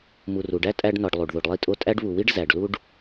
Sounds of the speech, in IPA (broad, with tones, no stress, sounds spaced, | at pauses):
m u˨ r u˩ ɖ æ˥ tʼ æ˦ ɖ n ɒ˨ ɖ lˠ u˩ ɖ ð o˨ ɖ lˠ i˦ tʼ o˦ tʼ æ˥ ɖ β u˨ w i˥ ɖ z æ˨ ɖ l u˥ ɖ